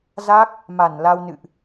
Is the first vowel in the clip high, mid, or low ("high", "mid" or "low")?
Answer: low